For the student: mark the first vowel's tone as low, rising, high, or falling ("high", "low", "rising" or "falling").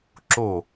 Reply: falling